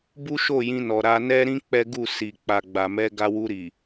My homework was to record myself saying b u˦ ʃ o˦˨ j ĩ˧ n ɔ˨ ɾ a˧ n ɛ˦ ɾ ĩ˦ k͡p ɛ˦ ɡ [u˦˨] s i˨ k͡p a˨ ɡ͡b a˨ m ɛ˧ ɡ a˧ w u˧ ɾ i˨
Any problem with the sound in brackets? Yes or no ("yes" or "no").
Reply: no